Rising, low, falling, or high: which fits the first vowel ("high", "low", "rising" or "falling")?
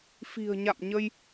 low